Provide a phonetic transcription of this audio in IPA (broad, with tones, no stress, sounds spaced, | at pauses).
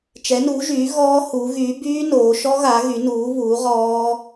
t͡ʃ ɛ˩˥ n u˩˥ ʒ yː˩˥ ɣ ɔː˦˥ h u˩˥ ɣ yː˩˥ b yː˦˥ n oː˩˥ ʃ ɔ˦˥ ɣ a˩˥ ɣ y˩˥ n uː˩˥ β uː˩˥ ʁ ɔː˦˥